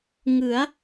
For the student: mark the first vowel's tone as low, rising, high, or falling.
rising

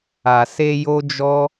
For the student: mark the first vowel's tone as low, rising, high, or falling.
low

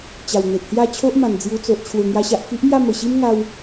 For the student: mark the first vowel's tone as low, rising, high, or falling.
low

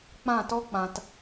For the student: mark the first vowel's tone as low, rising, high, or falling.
falling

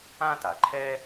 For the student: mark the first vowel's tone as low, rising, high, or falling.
high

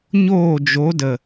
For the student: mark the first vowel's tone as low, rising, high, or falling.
falling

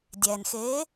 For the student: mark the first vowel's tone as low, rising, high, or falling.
low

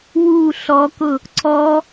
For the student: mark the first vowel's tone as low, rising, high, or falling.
falling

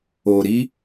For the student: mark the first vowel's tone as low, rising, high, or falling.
low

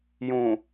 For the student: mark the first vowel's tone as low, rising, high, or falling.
low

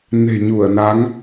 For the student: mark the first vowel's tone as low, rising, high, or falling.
low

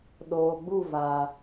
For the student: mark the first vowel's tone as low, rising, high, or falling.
low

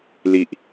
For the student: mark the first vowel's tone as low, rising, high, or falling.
low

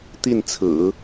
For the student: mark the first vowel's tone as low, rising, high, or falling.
falling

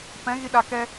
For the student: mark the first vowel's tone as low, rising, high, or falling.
rising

